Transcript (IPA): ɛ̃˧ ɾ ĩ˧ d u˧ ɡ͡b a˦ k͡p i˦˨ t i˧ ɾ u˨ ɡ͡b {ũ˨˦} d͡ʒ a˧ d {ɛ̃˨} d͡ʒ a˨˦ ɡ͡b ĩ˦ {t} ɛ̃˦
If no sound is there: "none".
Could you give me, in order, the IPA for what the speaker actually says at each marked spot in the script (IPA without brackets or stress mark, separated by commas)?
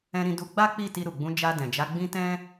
ũ˨˦, ɛ̃˨, t